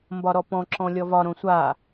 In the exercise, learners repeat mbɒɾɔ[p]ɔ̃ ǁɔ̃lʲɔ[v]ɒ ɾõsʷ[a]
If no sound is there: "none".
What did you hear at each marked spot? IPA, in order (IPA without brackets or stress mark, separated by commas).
p, v, a